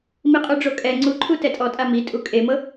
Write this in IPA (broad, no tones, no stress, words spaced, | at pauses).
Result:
miqʼuɖ͡ʐokʼɛ ŋ͡ǀuǃʰu tɛtʼɔtʼa mi tʼukʼemɤ